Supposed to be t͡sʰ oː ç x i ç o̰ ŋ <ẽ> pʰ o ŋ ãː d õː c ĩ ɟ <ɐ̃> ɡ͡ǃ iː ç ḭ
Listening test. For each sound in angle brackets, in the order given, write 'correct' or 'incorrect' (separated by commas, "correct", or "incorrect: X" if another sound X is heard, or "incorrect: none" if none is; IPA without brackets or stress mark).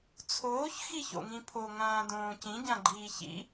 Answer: incorrect: ĩ, incorrect: ã